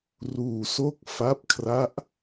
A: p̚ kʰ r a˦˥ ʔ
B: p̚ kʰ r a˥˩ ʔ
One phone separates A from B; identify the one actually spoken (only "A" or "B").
A